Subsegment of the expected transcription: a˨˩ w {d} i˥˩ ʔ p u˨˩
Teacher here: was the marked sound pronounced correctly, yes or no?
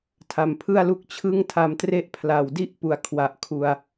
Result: yes